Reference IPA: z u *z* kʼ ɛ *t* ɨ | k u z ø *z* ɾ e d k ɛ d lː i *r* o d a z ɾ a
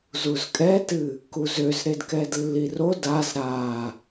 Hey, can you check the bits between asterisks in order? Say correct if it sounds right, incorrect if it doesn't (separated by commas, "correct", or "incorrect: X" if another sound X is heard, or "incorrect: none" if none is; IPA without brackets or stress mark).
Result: correct, correct, correct, correct